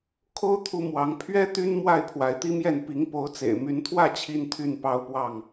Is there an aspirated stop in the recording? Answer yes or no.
yes